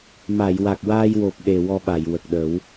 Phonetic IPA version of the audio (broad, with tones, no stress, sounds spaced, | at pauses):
m a˨˩˨ j w a˨˩ k̚ w aː˧ j w o˨˩ p̚ ɗ e˨˩ w ɔ˧ ɓ a˨˩˨ j w ə˨˩ k̚ ɗ ə˨˩˦ w